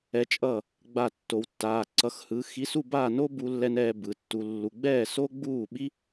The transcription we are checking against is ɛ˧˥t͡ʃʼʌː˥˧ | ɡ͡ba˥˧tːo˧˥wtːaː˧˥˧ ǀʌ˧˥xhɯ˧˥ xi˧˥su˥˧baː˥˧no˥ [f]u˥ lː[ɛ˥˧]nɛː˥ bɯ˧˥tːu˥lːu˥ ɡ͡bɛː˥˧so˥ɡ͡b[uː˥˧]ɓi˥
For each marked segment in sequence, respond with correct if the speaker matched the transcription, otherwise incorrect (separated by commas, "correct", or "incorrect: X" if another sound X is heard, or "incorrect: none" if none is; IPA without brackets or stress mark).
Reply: incorrect: b, incorrect: ɛ˥, correct